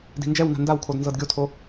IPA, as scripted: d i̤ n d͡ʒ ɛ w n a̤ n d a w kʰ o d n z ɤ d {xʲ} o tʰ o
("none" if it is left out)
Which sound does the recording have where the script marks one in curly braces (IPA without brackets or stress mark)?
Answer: ɡʲ